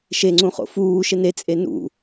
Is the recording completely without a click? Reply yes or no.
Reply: no